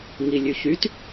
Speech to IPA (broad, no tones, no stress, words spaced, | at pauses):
ŋilʲʉçyt